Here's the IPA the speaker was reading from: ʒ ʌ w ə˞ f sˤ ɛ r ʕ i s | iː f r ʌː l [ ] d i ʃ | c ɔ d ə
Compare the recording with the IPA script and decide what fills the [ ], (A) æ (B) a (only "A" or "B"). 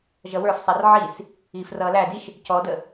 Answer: A